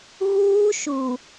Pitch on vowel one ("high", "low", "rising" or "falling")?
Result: high